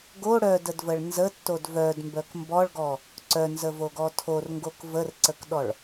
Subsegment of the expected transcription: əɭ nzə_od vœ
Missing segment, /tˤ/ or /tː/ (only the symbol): tː